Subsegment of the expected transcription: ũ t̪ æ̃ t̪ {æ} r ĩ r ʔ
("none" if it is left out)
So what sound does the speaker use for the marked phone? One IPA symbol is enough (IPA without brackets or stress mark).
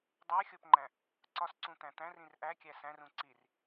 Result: æ̃